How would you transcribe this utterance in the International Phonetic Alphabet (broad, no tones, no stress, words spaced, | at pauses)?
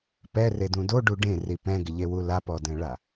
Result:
pɛredũ doɖu ɖẽri pɛ̃ɡɪʎewu lapɔdɛ̃ɭa